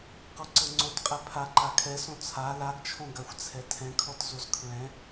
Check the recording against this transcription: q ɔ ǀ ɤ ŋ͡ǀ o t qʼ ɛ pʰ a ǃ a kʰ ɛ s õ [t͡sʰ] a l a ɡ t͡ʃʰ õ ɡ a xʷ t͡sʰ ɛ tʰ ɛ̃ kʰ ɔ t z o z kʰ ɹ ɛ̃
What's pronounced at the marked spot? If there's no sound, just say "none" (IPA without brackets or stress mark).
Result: t͡sʰ